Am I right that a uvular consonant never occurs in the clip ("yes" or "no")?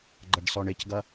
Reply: yes